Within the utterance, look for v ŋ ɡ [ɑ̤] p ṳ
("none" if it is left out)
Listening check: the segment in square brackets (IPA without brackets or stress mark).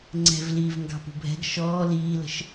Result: ɑ̤